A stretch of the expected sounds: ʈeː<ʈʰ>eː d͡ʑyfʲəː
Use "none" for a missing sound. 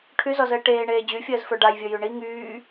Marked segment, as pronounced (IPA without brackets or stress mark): ɳ